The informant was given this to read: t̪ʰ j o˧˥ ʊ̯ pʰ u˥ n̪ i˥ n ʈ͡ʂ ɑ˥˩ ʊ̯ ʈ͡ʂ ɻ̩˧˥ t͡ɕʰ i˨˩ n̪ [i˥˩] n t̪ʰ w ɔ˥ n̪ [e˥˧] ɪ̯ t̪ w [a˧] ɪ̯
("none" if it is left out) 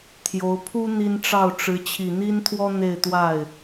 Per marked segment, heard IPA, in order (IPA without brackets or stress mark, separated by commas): i˥, e˥˧, a˥˩